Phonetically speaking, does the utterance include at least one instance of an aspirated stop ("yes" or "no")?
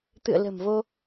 no